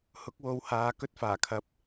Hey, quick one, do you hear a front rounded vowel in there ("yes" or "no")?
no